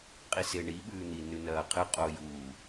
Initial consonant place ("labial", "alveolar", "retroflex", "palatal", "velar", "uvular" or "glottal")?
uvular